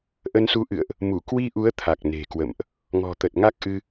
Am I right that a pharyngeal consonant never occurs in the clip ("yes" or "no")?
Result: yes